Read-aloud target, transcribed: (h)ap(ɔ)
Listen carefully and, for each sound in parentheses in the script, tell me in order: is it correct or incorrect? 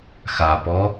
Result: incorrect, correct

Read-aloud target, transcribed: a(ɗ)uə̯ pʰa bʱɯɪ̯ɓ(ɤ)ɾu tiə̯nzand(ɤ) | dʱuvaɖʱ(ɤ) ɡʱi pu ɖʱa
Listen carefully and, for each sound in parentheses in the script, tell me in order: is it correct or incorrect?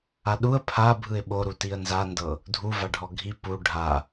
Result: correct, incorrect, correct, incorrect

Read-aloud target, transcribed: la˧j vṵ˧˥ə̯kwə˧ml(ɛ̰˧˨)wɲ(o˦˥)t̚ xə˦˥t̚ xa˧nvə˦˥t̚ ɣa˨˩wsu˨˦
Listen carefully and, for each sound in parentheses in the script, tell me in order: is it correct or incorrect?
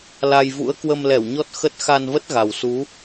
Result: incorrect, incorrect

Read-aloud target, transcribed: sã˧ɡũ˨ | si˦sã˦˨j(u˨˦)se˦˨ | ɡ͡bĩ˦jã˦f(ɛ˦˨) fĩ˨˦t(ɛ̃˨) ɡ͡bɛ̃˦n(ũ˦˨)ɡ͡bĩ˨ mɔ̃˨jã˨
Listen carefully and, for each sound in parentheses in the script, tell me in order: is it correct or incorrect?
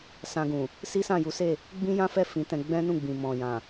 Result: correct, correct, incorrect, correct

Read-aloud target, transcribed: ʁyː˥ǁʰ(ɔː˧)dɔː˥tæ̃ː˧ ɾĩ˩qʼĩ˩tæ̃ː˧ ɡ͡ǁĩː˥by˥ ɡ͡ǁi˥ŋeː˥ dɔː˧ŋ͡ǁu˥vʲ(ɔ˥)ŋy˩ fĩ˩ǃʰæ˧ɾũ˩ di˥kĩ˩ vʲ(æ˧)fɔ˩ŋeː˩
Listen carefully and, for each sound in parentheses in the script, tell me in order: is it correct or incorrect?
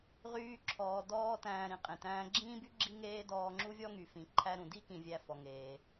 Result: correct, correct, correct

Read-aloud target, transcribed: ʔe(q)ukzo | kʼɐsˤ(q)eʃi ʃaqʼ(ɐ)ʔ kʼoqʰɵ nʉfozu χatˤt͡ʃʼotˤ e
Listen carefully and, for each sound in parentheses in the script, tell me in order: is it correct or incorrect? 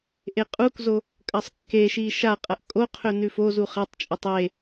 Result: incorrect, incorrect, correct

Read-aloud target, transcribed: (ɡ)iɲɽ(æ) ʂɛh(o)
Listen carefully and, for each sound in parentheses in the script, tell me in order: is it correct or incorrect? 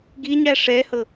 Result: correct, correct, incorrect

